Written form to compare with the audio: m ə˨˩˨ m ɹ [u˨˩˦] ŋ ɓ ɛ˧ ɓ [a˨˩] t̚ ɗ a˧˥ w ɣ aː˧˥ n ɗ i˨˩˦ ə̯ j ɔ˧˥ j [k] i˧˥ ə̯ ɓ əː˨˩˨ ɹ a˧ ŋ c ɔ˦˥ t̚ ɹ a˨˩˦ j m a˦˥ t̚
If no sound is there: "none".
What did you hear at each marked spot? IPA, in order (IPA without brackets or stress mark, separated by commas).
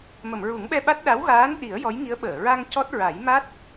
u˨˩˦, a˦˥, ŋ